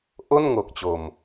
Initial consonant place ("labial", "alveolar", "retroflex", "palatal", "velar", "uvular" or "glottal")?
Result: glottal